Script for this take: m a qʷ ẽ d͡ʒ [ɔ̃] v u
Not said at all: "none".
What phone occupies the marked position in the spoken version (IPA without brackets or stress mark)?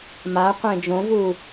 õ